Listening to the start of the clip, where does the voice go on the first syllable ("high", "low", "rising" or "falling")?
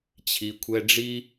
low